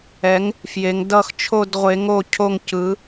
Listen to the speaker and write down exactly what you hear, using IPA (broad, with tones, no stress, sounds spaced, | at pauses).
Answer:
ɛ˨˥ ŋ | f j e˨˥ ŋ d ʌ˥˧ x t͡ʃʰ o˥˧ d ʁʷ e˨˥ ŋ o˥˩ cʰ o˥˩ ŋ c ɯ˨˥